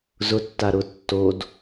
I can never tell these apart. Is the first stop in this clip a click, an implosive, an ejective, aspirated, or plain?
plain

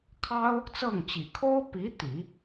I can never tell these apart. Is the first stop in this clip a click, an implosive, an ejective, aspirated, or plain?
aspirated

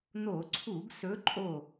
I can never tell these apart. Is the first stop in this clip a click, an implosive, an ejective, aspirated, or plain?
click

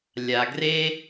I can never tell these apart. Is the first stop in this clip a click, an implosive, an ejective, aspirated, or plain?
plain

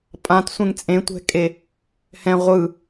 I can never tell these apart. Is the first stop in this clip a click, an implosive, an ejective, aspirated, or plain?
ejective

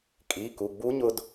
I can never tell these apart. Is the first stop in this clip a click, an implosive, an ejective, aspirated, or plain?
ejective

